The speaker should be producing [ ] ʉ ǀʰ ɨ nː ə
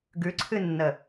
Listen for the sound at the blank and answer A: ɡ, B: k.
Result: A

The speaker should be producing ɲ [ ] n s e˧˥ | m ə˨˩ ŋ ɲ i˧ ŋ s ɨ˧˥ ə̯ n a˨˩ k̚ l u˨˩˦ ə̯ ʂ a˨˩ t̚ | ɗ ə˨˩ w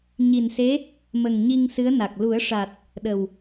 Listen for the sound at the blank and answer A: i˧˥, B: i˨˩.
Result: B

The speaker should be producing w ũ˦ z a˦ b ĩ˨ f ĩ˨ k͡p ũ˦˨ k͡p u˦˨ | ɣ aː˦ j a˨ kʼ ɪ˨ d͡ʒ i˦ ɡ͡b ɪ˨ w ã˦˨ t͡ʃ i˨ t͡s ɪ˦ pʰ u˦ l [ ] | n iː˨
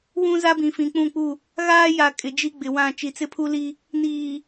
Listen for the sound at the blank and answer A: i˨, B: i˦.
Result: B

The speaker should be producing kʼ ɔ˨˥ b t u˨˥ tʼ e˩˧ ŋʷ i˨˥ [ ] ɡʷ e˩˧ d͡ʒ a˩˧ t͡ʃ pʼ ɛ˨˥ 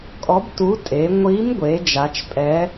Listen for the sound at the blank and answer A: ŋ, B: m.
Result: B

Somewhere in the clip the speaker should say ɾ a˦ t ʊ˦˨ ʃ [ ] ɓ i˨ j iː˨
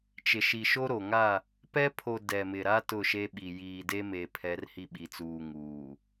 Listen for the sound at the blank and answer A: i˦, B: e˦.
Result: B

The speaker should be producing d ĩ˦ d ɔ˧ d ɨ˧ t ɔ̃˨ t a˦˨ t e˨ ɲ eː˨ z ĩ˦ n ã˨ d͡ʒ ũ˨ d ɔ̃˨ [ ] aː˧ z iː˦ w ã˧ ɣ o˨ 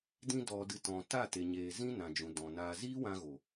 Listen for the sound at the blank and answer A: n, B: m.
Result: A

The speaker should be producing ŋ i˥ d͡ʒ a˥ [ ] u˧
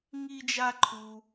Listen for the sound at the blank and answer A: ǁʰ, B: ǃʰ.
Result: B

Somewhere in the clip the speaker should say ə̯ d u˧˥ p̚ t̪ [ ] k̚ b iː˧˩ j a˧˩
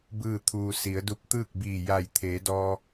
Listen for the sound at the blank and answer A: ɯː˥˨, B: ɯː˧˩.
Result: A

